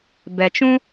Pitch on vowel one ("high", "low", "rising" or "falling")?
low